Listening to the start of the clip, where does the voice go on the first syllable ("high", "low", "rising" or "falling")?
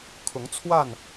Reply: rising